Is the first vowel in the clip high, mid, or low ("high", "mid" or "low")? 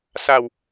low